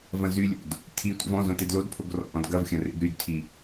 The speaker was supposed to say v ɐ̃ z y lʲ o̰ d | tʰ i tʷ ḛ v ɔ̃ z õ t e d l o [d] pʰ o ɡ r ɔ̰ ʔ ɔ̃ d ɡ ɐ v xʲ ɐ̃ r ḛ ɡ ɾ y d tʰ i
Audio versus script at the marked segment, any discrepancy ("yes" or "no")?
no